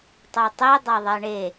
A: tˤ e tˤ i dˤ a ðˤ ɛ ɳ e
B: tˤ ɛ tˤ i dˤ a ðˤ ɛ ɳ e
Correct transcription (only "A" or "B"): B